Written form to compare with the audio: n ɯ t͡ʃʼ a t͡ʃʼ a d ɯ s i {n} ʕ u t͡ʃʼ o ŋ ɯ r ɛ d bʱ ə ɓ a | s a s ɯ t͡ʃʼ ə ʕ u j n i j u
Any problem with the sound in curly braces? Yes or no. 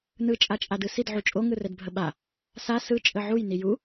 yes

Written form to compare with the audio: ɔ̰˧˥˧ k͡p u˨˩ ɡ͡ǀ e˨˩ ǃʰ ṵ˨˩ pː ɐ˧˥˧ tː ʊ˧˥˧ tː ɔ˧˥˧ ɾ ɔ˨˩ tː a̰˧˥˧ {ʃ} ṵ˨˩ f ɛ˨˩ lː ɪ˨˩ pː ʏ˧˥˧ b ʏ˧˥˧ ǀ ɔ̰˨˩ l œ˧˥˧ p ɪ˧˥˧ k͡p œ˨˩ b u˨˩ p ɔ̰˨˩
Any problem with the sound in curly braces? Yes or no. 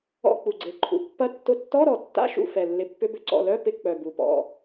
no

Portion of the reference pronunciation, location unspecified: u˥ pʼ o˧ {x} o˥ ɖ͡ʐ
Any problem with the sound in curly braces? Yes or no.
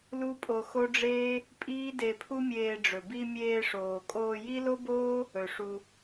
no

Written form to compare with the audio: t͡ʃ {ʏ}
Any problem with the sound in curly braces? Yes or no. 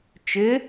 no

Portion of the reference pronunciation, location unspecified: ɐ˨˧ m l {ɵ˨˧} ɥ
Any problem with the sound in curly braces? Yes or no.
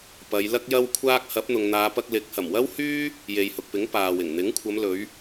no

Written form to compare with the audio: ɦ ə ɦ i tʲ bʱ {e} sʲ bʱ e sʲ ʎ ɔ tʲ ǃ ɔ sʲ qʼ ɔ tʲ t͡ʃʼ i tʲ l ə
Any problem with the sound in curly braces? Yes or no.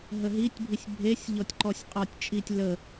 yes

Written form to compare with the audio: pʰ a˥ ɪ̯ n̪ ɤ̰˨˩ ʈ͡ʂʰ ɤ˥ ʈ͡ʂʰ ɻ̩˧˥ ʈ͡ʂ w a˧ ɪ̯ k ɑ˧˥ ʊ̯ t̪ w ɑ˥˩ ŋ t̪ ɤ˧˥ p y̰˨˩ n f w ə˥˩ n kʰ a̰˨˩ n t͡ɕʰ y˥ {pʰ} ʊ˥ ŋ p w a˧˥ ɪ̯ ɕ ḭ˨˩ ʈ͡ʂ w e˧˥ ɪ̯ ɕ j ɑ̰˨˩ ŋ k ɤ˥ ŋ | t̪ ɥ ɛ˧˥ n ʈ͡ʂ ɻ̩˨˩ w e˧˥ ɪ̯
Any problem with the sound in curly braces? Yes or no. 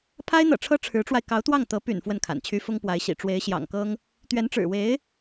yes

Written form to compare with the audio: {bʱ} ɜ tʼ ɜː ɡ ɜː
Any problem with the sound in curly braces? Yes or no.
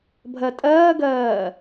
no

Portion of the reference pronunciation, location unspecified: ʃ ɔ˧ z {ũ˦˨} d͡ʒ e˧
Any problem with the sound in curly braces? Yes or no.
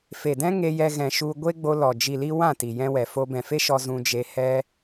yes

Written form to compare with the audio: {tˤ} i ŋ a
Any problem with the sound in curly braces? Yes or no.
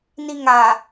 yes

